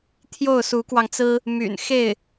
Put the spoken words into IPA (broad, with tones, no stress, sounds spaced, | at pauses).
t̪ʰ j o˥˩ ʊ̯ s u˧˥ k w ɑ˧ ŋ t͡s ɹ̩˥ | m y̰˨˩ n x e˥˩ ɪ̯